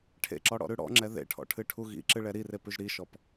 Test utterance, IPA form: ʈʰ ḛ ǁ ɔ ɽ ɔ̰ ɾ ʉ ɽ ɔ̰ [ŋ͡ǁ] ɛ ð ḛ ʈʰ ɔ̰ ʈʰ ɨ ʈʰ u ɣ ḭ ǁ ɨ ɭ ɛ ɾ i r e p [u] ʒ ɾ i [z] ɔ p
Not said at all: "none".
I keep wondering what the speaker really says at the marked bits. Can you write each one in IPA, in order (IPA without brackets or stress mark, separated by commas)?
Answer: ŋ͡ǁ, ʉ, ʃ